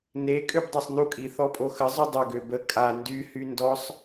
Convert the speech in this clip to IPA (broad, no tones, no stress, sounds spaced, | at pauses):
n e kʼ ø b dˤ ø sˤ n u kʼ i θ ɔ pʼ o x ə zˤ y dˤ ʏ ɡ ø b ə kʼ a n d y h y n d ɔ sˤ